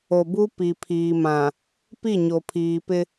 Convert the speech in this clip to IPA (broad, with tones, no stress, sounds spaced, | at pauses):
o˨ b u˦ p i˨ pʰ iː˨ m ã˨ | p i˦˨ ɲ o˨ pʰ iː˨ p ɪ˦